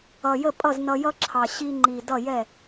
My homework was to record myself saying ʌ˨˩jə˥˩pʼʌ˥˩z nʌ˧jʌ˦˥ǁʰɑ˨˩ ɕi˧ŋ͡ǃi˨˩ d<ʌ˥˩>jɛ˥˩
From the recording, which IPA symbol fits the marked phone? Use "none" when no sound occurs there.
ʌ˥˩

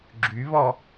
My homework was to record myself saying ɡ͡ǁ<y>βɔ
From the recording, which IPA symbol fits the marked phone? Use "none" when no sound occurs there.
y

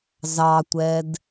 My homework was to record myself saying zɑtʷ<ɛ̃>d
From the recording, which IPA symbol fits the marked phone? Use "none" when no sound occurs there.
ɛ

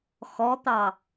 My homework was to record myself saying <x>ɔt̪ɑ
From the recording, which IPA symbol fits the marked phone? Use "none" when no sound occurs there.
x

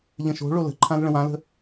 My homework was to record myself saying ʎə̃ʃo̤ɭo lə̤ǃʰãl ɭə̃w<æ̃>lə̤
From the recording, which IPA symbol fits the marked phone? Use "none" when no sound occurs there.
ã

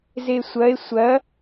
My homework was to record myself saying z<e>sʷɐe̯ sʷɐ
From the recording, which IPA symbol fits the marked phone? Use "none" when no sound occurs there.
e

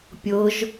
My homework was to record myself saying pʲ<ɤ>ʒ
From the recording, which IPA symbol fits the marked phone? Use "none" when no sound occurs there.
ɤ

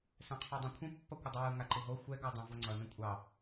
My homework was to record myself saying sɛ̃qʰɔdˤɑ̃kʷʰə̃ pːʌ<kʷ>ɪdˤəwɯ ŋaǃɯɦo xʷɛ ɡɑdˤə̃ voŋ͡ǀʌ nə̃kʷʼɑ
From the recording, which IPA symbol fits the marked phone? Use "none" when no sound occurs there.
kʷ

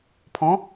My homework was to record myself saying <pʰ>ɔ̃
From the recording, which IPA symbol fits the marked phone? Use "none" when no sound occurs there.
pʰ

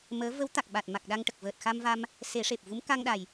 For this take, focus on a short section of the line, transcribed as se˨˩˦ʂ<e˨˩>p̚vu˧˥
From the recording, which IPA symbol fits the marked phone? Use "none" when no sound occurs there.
e˨˩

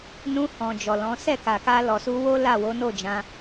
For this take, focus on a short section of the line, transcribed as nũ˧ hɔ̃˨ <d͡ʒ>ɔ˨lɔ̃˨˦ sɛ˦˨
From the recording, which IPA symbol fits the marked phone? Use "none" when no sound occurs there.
d͡ʒ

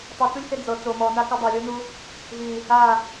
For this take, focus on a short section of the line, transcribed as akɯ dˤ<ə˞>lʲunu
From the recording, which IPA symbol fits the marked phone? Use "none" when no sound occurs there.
ɤ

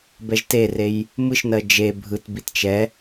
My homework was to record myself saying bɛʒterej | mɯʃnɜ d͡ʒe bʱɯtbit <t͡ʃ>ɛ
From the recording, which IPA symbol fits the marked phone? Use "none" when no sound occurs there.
t͡ʃ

